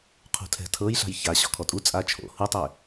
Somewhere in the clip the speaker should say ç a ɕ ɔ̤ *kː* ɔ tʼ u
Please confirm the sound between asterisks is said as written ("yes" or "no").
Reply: no